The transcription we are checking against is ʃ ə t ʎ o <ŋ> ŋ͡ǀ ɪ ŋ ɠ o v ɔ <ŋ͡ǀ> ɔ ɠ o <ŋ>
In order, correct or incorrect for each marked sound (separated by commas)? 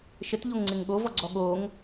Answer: correct, incorrect, correct